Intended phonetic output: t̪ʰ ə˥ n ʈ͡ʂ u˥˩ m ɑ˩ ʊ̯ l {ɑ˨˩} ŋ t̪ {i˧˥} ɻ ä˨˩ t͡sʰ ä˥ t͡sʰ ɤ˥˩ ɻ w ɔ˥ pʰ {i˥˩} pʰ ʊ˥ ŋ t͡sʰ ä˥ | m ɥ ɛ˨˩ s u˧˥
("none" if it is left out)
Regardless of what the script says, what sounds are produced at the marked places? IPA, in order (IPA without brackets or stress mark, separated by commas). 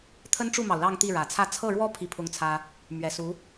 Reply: ɑ˥˧, i˥˩, i˥˩